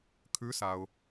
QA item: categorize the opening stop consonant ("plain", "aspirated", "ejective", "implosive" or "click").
aspirated